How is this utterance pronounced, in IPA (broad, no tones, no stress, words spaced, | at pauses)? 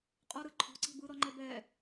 qʼɔɾɯ ǃʰɔ̤ǀi̤ bɯɾɔŋ͡ǃɛ bɛ